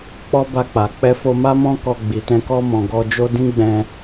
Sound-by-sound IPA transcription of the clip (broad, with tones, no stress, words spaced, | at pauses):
k͡pɔ˦ba˧k͡pa˨ k͡pɛ˧fo˧ma˦ mɔ̃˦kɔ˧ɡ͡bi˨tɛ̃˧ kɔ˧mɔ̃˨ ɡɔ˧ d͡ʒo˧ dĩ˦ɡ͡bɛ̃˧